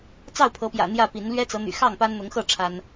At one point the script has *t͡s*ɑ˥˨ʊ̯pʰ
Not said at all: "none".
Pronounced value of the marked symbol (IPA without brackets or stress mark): t͡s